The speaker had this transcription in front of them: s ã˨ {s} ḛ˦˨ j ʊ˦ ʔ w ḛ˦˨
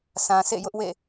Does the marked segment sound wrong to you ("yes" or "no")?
no